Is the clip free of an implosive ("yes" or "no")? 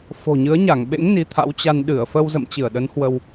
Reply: no